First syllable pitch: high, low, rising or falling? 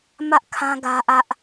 high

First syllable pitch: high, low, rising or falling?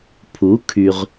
rising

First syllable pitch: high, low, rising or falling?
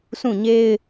falling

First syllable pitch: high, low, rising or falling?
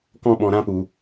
high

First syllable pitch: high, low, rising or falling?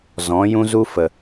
rising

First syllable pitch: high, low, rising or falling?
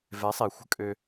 rising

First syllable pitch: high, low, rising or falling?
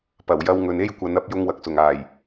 low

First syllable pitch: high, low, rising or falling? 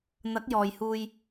rising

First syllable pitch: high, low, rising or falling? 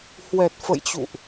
low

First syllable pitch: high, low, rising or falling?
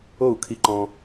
falling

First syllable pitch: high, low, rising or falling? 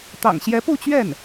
low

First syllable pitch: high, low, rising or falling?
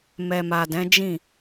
low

